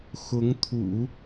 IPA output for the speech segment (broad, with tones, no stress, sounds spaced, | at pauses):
x ʊ˧˥ ŋ t̪ʰ ṵ˨˩˦